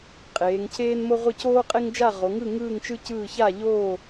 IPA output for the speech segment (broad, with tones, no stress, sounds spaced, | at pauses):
qʼ eː˩˧ ŋ cʰ eː˥ n m o˥ ʁʷ ɯ˥˨ c oː˥ qʼ e˥ ŋ d͡ʒ a˥˨ ʁ o˩˧ ŋ ɯ˥˨ ŋ ɯː˥˨ ŋ t͡ʃ ɯ˥ c ɯː˥˨ ç a˥˨ ʎ oː˥˨